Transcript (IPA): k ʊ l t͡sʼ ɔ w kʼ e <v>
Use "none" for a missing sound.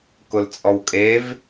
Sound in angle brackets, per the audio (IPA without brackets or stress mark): v